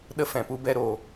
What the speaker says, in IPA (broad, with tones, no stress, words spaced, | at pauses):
ɗə˦fɛ̃˨pu˦bɛ˦ ɾoː˧